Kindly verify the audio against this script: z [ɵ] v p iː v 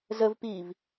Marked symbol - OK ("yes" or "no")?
no